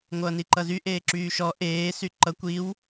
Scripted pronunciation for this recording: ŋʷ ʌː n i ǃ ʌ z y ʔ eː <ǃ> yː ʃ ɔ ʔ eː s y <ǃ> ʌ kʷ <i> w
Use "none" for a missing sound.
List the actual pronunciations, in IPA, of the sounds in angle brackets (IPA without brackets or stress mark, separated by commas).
ǁ, ǃ, i